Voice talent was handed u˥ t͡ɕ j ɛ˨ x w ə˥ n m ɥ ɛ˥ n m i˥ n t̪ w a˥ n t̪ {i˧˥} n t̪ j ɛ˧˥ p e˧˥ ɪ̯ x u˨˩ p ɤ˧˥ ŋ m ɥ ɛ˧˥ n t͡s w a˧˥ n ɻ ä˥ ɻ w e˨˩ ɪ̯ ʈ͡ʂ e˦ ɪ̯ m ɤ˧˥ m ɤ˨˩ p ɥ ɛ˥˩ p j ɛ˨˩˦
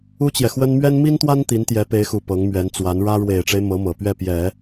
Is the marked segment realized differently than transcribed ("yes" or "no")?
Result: no